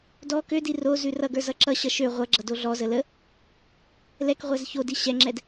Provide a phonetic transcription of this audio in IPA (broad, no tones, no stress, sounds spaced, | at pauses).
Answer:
d ɔ k ø d i r o z ʉ r ʌ ɡ ə˞ z ʌ ǁ ʌ ɕ ʌ ʃ ø ʁʷ ʌ ɡ͡ǁ ʌ d o ɮ ɔ z ə l ə | l ɛ k ʁʷ ɛ z ç o d i ɕ ɛ ŋ͡ǁ ɛ d